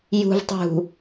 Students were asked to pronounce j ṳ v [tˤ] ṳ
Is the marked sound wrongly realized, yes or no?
no